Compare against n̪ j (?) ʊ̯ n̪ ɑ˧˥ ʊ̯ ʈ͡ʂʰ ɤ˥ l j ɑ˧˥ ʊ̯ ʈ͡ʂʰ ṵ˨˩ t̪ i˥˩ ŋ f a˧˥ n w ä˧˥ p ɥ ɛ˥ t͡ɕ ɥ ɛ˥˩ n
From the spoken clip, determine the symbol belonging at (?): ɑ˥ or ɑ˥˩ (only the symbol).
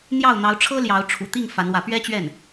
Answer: ɑ˥˩